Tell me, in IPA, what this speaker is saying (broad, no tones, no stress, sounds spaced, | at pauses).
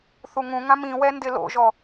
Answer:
θ u ŋ ũ ŋ ã m ĩ w ɛ n d ɪ l o̰ ʒ ɔ